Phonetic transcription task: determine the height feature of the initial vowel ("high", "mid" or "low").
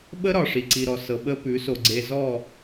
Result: mid